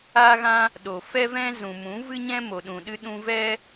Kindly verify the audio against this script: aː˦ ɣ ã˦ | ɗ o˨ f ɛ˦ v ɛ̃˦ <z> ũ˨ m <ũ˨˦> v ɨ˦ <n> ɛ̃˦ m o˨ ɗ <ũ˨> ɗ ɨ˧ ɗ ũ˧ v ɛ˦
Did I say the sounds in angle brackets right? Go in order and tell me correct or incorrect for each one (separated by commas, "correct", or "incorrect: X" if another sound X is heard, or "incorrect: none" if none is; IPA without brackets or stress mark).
correct, correct, incorrect: ɲ, correct